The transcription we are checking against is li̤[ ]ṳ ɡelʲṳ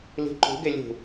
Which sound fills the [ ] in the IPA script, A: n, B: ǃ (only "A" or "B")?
B